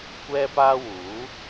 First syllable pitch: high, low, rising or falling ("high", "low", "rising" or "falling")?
high